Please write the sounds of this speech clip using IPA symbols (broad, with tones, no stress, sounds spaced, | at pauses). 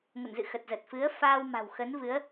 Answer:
ŋ ə̰˧˨ n z ɨ̰˧˨ x ə˨˩ t̚ z ə˨˩ t̚ f ɨ˨˦ ə̯ f aː˧ w m a̤˨˩ w x ə˨˦ n v ɨ˨˦ ə̯